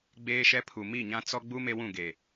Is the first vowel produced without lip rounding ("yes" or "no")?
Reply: yes